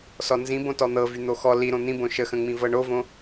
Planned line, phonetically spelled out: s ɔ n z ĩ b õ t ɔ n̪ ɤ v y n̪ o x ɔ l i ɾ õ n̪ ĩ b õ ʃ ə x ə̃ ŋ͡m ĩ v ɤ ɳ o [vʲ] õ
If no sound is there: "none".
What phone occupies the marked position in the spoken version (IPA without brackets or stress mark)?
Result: v